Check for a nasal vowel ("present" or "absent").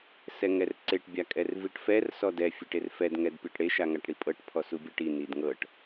absent